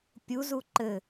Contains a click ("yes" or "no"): yes